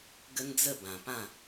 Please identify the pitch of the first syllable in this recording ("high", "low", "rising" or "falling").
high